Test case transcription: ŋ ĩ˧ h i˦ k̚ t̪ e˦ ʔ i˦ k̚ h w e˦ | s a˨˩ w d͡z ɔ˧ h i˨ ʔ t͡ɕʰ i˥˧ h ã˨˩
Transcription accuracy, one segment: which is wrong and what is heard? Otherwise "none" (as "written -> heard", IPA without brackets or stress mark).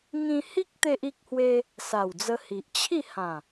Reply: ɔ˧ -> ə˧